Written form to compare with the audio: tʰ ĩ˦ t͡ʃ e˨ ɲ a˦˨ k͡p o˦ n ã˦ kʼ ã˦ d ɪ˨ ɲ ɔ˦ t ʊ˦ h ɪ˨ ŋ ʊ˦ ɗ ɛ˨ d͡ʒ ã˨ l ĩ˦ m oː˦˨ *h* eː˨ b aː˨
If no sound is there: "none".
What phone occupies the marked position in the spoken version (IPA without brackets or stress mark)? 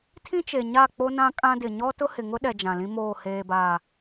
h